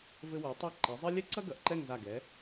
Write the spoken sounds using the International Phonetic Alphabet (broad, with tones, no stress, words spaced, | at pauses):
vɘ˧ wɛ˩˧ tˤɨ˧˩ ǃi˩˧zˤɘ˥ lʲɛ˥ǀɐ˥ ɡɐ˩˧ʔǃɛ˥˧ŋza˧˩ ɡɛ˩˧